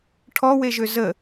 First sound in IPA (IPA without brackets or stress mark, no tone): ʈʰ